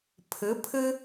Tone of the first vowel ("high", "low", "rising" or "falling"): rising